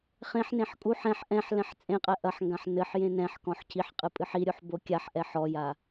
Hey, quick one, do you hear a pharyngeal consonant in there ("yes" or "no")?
yes